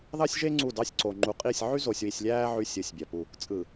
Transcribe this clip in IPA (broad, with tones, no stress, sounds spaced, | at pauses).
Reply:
ð ɑ˦ sʲ ʒ e˦ ŋ͡ǀ u˦˨ d ɑ˦ sʲ ǀ o˨ ŋ͡ǃ u˨ qʼ i˦˨ sʲ ʕ y˦ z o˨ sʲ w i˨ sʲ lʲ æː˦ ʕ y˦ sʲ ɯ˨˦ sʲ bʲ æ˨ p u˦˨ | t͡sʼ ɯ˨